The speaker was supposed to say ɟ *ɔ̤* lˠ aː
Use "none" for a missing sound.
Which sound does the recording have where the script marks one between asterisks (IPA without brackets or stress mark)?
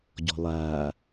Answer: ɔ̤